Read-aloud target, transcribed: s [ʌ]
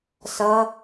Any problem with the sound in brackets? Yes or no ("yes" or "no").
no